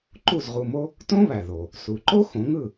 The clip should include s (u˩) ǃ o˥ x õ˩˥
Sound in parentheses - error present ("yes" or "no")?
no